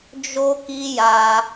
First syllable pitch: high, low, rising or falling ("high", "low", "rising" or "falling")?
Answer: high